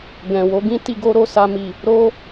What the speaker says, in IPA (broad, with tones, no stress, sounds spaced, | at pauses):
ɡ ɛ̃˨ w o˨˦ ɡ ĩ˦ t i˧ ɡ o˦ ɾ o˦˨ s a˧ m i˨ | ɾ o˦